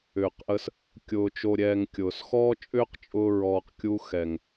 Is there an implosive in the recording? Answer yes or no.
no